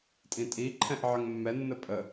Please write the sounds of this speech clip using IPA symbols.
tʼ ĩ tʼ i ǃʰ ɛ̃ ʔ ʕ ə ŋ mː ɛ nː ə pʼ ə

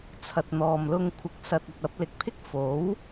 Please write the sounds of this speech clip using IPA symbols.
t͡sʰ ɐ˨ t̚ n̪ ɔː˨ m l ʊ˧ ŋ kʷʰ ɪ˨˥ k̚ s ɐ˧ t̚ ɐ˧ t̚ ɐ˧ p̚ l ɪ˨ k̚ pʰ ɪ˥ k̚ f o˨˥ w

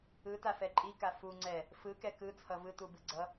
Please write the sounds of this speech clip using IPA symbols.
ɯ t a f ɛ ǃʼ i k a f u ŋ͡ǀ ɛ | f ɯ k ɛ k ɯ t͡sʰ ʌ v ɯ t u b ɯ ɡ͡ǀ ʌ

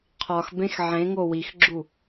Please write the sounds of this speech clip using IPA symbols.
qʰ ɒ x b ẽ x ʕ ẽ ŋ o w i x ɡ͡ǁ u

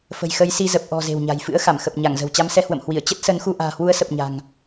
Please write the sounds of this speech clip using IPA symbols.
f ə̤˨˩ j x ə˨˦ j s i˧ z ə˨˩ p̚ ʔ ɔ̤˨˩ z e̤˨˩ w ɲ a̤˨˩ j f ɨ̰˧˥ ə̯ x a˧˩ m x ə˨˩ p̚ ɲ a˧˩ ŋ z ə̤˨˩ w t͡ɕ a˨˦ m s ɛ˧ h w ə̰˧˨ m h w i˧˩ ə̯ t͡ɕ ə˦˥ t̚ s ə˨˦ n x u˧ ʔ a̤ː˨˩ h w u˨˦ ə̯ s ə˨˩ p̚ ɲ a̤˨˩ ŋ

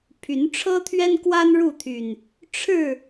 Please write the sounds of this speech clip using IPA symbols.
pʰ y˨˦ n ʈ͡ʂʰ ɤ˦ t̪ʰ ɥ ɛ˦ n k w a˦ n ɻ u˥˨ t̪ʰ y˨˩ n | ʈ͡ʂʰ ɻ̩˥˨

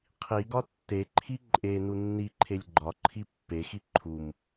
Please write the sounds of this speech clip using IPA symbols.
qʰ i ɡ ɒ tː e ǃʰ i ǃʼ e n u nː i ǃʰ e lʲ ɡ͡ǃ ɒ ǃʰ i pː e x i ǃʰ u m

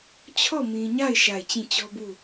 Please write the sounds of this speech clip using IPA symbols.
t͡ɕʰ ɔ˦˨ m ĩ˨ ɲ a˦˨ ɪ̯ ʃ a˦˨ ɪ̯ t͡ɕ ĩ˦˨ t͡ɕ ɔ˦ b u˦˨

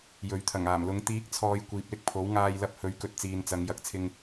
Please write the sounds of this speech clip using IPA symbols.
j ɵ˨˥ ɥ t̪ʰ ɐ˨˩ ŋ aː˨˩ m l ʊ˨˥ ŋ t̪ iː˨˥ k̚ t͡sʰ ɔː˨ j kʷ iː˨ p̚ l ɪ˥ k̚ pʰ o˨˥ w ŋ aː˧ j l ɐ˧ p̚ h ɵ˨˧ ɥ k ɵ˧ t̚ t͡s iː˨ n t͡s ɐ˨˧ ŋ j ɐ˨˥ k̚ t͡sʰ ɪ˧ ŋ

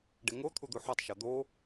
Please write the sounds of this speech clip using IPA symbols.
ɖ e ŋ o t̪ʰ u d̪ u ħ o tˤ ʃ ɒ d̪ o

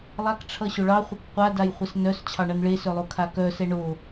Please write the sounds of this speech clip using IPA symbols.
lˠ a k ʈ͡ʂʰ ʌ ɕ o ɭ ɑ χʷ ʌ k qʷ a d a j χʷ ə s n œ s t͡ɕʰ ɑ ɳ ʌ n ɭ e s œ lˠ o kʰ a k œ s ɛ ɳ o

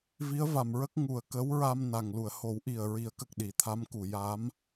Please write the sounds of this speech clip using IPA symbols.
v i˧˥ ə̯ v a˨˩ m ɹ ə˦˥ k̚ ŋ u˨˩ ə̯ k ə˧˥ w ɹ a˧ m n a˨˩ ŋ l u˨˩˨ ə̯ h o˨˩˦ w ʔ i˨˩ ə̯ ɹ i˨˩˦ ə̯ k ə˨˩ k̚ ɗ i˨˩˦ t̪ʰ a˧˥ m k u˨˩˨ j aː˧˥ m

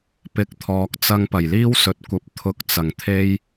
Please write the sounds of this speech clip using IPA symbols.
p ɪ˨˥ k̚ t̪ʰ ɔː˨ k̚ t͡s ɐ˧ ŋ p ɐ˨˩ j l iː˥ w s ɵ˨ t̚ kʷ ɐ˨˥ p̚ t̪ʰ ʊ˧ k̚ t͡s ɐ˨˩ ŋ t̪ʰ e˥ j

